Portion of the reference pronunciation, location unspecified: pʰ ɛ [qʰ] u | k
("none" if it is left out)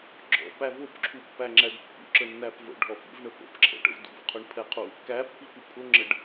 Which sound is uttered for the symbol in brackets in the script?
qʰ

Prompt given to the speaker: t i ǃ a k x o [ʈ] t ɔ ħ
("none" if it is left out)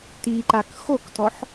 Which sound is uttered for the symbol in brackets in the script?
k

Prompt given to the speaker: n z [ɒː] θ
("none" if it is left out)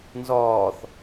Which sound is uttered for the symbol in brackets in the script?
ɒː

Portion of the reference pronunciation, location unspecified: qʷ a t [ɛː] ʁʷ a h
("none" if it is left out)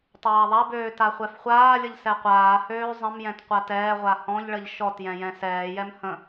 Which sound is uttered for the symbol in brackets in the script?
ɛː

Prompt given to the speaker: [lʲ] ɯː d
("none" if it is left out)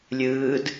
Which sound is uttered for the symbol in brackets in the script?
lʲ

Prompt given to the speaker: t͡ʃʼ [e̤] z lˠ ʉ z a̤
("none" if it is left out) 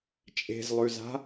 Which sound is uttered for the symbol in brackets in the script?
e̤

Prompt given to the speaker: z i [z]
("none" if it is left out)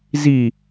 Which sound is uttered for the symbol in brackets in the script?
none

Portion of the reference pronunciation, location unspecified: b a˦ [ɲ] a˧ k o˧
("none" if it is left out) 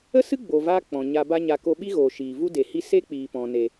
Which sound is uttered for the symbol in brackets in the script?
ɲ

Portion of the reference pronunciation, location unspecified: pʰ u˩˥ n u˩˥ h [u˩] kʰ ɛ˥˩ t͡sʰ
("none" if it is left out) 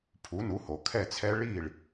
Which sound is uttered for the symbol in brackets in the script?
o˩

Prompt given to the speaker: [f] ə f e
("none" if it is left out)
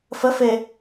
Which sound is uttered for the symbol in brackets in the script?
f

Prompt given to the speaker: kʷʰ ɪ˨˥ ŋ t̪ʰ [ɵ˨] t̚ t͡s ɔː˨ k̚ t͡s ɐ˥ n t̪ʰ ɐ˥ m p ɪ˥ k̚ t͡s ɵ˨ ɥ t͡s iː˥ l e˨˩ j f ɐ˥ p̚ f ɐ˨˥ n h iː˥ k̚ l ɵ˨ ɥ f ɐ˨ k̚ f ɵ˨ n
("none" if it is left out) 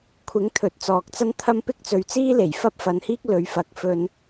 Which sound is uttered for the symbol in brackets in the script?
ɵ˨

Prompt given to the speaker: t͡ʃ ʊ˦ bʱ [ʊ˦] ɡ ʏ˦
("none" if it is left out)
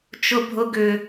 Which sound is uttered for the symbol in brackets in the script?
ʊ˦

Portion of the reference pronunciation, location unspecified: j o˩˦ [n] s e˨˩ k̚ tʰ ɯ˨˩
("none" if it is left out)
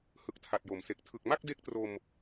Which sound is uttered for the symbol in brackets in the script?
m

